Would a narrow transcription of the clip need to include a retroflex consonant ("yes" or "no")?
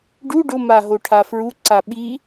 yes